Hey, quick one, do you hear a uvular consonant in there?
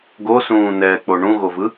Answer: no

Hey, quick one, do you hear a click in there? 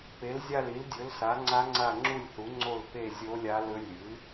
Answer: yes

